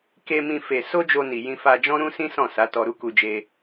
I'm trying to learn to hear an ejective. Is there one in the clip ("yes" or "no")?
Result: no